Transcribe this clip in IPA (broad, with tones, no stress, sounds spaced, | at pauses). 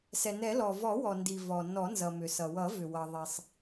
s ɛ˩ n ɛ˨˩˦ l ɔ˩ v ɔ˨˩˦ w ɔ˩ n d i˩ v ɔ˩ n ɔ˨˩˦ n z ʌ˩ m ʏ˩ s ʌ˩ w ʌ˨˩˦ v ʏ˩ w ʌ˩ ðˤ i˩ sˤ